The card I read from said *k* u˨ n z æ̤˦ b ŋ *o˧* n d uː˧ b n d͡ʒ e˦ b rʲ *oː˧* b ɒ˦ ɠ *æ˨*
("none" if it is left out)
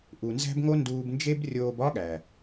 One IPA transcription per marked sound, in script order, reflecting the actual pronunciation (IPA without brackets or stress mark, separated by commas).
ʔ, o˦, oː˧, æ˨